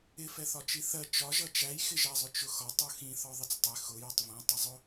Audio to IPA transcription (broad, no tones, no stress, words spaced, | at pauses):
ɪfɛ θɒt͡ʃiθɜ t͡ʃɒʒʌ t͡ʃæjxɪʒæzˤʊ t͡ʃʊxɒtˤu xĩθɒ ðˤɪt͡stˤɪ xʊjʊtˤ vĩ tˤɪzˤʊ